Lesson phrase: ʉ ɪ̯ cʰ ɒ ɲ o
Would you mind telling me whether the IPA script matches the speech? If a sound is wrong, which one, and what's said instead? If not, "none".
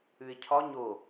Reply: none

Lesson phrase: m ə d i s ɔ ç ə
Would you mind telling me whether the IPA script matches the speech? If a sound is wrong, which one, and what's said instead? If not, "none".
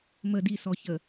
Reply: none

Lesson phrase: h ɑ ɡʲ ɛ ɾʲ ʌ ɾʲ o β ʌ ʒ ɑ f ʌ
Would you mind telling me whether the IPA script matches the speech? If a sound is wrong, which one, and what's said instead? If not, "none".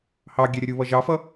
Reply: o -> u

